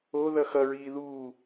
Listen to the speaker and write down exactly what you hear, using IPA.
o ðʌxʌɹiː ðuː

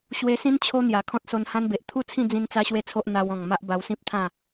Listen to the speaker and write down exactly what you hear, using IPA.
ɕwe˧sĩ˦n t͡ɕʰo˦n̪ja˨˩ kʰɔ̃˦t̚so˧nhã˦nbe˨ʔ t̪ʰu˥˧t͡sʰĩ˥˧d͡zĩ˧n t͡sa˦ɕwe˥˧t͡sʰo˦ʔ n̪a˧wɔ̃˨˩ŋ ma˦ʔba˧wsĩ˦p̚t̪ʰã˥˧

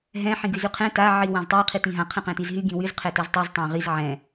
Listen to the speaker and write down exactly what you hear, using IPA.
ɦɛ̃ ħĩɡyzyqʰɛ̃ ta ʕiwãztˤi qʰitĩɦã qʰɛ̃qɛ̃tizɦy ɡĩwyz qʰɛtɛztˤyz tˤãʁiz ʕɛ̃

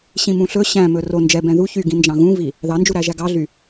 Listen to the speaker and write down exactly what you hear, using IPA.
ɕĩmũɬɵ ɕæ̃mɵ ro nd͡ʒɛ bɛ̃ðu çyɡĩ nd͡ʒɑ̃ɣũvi | ðɑnd͡ʒuɾæʒæ ɡɑɮy

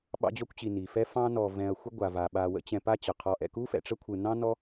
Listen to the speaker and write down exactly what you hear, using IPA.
ɓɑ̰˦d͡ʑɔ˦kʷt͡ɕi˨ ni˩fɛ˦ fɑ̃˦nɔ˨ vɛ̃˨ɐ̯ xʷə˥ɡʷa˨ va˩ɓa˨wə̰˦ t͡ɕɛ̃˨pa˦t͡ɕʌ˩ qʰɔ˨ʔɛ̰˨ku˥fɛ̰˨ ʈ͡ʂə˥kʷʰɯ˨nɑ̃˥nɔ˦

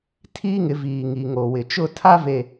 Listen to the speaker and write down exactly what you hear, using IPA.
tʰiː˦ŋɪ˨˦viː˨ŋi˨ ŋo˨wɪ˨ t͡ʃʊ˦˨tʰa˦ve˨

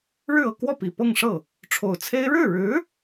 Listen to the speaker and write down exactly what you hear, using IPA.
ɻɻ̩˥˧ɤ˥˧kwɔ˥˩ pi˨˩pɤ˥˧ŋʂɤ˥˩ | ʈ͡ʂʰo˨˩ʊ̯t͡sʰe˥ɪ̯ ɻɻ̩˥˩ɻɻ̩˧˥

